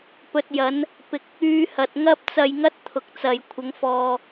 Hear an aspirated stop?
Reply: yes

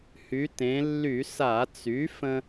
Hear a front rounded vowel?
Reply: yes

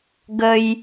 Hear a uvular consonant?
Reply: no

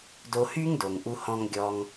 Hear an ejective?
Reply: no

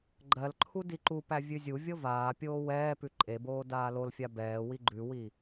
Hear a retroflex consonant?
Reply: no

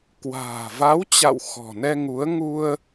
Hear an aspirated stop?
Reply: no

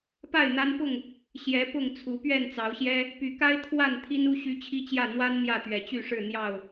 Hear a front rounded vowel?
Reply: yes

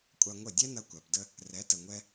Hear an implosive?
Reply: no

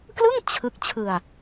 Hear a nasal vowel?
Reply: no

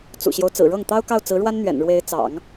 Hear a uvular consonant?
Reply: no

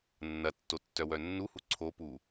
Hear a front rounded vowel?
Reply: yes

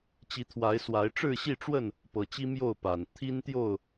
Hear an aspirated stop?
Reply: yes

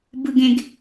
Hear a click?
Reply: no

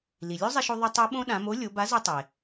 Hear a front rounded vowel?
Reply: yes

